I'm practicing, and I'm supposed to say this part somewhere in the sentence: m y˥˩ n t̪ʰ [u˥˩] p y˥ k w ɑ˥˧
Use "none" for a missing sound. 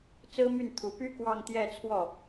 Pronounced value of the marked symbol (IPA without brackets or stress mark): u˨˩